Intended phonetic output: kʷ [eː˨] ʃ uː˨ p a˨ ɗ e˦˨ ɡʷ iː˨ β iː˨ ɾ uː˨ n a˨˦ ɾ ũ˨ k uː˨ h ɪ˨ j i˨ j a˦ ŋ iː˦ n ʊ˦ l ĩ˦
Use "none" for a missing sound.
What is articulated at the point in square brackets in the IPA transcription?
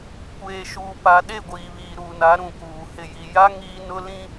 eː˨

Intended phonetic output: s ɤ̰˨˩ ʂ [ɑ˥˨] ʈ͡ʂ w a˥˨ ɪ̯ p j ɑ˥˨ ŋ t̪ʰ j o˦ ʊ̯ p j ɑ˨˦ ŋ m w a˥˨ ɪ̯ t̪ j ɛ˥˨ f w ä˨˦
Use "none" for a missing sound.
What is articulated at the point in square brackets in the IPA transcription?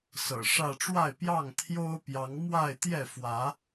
ä˥˨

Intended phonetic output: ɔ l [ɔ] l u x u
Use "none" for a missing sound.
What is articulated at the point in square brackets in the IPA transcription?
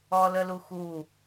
ə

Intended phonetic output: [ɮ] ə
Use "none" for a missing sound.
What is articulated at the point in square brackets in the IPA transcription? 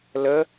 l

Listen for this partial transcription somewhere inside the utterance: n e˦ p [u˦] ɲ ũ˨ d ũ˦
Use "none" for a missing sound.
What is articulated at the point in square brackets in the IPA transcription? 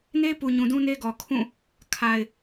u˨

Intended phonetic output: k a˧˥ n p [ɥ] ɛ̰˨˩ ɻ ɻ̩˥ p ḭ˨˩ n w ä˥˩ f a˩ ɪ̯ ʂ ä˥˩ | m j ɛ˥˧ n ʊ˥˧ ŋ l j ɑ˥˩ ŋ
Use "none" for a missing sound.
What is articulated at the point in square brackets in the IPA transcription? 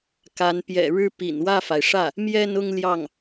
j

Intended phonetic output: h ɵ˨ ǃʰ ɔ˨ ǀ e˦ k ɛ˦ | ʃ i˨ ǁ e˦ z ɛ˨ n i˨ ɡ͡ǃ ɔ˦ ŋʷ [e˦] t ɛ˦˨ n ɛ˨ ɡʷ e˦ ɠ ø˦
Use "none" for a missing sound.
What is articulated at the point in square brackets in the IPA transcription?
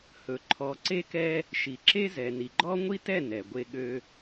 i˦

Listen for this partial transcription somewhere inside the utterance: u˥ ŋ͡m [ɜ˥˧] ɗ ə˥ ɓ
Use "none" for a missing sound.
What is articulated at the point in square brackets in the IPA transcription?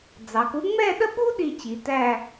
ɛ˥˧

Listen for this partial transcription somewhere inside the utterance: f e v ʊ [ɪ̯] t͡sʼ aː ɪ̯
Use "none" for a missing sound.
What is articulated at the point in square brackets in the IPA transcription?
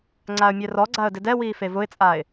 ɪ̯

